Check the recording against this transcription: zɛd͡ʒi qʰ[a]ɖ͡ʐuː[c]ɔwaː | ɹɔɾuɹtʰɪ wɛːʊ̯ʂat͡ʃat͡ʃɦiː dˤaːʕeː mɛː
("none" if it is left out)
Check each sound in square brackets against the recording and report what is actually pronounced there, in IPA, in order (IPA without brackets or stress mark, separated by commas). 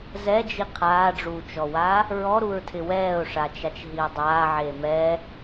aː, t͡ʃ